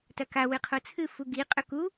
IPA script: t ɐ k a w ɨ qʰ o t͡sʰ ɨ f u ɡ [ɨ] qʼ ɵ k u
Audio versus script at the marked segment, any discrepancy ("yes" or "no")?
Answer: yes